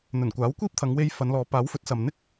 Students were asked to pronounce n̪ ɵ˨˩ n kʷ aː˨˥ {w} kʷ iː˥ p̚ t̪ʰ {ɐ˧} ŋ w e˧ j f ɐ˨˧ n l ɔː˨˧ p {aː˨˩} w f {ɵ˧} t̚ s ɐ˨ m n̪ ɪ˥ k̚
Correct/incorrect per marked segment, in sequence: correct, incorrect: ɐ˨˧, incorrect: aː˨˥, incorrect: ɵ˨˥

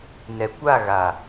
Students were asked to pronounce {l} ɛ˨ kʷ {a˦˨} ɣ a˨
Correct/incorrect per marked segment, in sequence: incorrect: n, correct

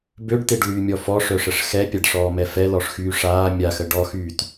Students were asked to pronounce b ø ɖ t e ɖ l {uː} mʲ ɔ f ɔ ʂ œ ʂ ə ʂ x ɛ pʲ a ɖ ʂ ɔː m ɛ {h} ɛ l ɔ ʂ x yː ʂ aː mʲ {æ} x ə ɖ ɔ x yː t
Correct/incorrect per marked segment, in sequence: incorrect: yː, incorrect: f, incorrect: a

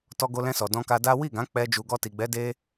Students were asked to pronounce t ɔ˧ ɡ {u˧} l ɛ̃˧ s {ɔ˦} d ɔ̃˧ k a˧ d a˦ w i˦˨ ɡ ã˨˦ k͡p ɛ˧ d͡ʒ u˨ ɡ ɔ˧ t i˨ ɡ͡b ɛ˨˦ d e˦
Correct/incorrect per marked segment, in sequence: incorrect: o˧, incorrect: ɔ˨

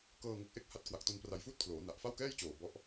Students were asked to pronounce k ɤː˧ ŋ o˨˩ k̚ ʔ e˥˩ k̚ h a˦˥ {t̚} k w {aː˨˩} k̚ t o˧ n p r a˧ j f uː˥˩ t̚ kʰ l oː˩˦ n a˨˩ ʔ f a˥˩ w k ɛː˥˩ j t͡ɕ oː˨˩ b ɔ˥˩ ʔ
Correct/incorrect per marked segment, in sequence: correct, incorrect: a˨˩

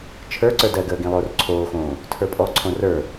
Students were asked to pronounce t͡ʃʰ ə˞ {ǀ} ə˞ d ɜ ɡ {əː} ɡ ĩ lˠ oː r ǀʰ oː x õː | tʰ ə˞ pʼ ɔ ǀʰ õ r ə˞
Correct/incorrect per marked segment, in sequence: correct, correct

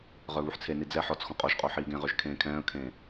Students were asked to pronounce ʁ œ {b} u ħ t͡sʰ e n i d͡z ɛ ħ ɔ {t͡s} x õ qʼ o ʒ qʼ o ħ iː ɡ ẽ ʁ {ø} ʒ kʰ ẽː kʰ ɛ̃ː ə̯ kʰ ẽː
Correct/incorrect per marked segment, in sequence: incorrect: β, correct, correct

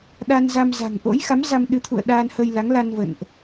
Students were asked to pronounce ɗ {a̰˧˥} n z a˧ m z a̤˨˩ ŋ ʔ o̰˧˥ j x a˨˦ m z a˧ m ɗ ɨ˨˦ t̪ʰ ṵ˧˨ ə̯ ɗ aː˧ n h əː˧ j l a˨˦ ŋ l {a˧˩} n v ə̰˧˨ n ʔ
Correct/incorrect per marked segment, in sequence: incorrect: a˧, incorrect: a˧

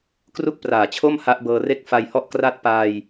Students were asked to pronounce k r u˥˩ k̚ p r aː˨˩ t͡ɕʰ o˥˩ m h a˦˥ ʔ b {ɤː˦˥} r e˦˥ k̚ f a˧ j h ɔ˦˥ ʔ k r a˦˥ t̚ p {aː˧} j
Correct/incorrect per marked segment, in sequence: incorrect: ɤː˧, correct

